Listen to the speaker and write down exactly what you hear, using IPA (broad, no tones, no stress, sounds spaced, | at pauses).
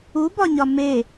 u b ɒ ɲ ɒ m e